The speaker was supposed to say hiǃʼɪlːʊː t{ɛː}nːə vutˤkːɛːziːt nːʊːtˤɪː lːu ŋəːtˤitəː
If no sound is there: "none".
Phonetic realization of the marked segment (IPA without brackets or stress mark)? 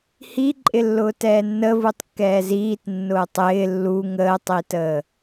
ɛː